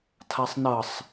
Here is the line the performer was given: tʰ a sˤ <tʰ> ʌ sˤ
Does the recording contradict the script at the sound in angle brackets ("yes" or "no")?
yes